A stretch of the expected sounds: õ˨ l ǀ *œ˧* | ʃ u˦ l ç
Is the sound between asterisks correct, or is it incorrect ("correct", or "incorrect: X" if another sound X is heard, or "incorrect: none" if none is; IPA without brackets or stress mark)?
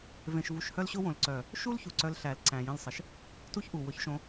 incorrect: œ˨